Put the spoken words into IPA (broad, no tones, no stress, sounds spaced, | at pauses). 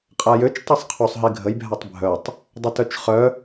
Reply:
qʼ a j ø t͡ʃ tˤ i sˤ qʰ u sˤ ɦ i ɡʱ ə j bʱ a tˤ bʱ œ tˤ | dˤ ə t œ t͡ʃ χ œ